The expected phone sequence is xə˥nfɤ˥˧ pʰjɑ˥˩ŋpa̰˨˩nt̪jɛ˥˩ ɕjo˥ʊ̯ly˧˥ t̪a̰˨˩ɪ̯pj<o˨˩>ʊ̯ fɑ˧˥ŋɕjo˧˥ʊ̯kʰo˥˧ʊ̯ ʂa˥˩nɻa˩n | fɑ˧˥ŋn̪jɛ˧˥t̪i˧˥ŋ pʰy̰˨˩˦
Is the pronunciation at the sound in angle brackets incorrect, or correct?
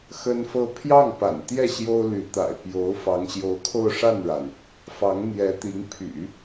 incorrect